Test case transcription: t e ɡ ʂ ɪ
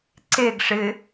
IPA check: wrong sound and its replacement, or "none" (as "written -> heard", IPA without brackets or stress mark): t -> ǀ